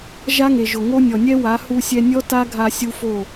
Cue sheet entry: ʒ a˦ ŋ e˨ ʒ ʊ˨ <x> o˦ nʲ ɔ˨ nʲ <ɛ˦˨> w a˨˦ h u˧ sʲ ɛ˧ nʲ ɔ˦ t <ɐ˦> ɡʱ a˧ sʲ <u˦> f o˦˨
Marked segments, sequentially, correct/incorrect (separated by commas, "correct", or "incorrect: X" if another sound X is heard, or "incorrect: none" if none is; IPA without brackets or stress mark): incorrect: ŋ, incorrect: ɛ˦, incorrect: a˦, correct